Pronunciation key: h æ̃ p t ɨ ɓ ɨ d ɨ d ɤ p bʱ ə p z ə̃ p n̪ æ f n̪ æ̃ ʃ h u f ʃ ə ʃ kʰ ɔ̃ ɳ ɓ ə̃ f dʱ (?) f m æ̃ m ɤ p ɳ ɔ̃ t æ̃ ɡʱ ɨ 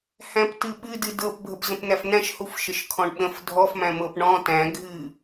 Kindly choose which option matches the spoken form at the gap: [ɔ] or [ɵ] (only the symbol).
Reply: ɔ